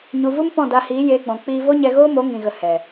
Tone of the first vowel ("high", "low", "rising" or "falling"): low